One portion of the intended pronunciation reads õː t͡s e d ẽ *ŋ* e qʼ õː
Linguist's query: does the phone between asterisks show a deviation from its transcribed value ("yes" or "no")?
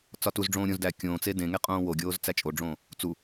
no